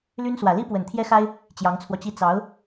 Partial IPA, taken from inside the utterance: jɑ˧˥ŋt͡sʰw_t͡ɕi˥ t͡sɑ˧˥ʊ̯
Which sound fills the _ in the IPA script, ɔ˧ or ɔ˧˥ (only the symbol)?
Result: ɔ˧